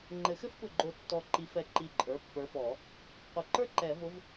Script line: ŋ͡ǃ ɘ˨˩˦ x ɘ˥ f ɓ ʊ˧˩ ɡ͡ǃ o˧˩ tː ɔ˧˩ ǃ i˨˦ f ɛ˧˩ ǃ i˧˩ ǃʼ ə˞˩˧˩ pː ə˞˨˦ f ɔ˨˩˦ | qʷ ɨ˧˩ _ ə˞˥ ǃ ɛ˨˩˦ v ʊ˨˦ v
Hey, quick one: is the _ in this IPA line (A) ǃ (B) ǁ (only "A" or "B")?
A